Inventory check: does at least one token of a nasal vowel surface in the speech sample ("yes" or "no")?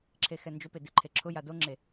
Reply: no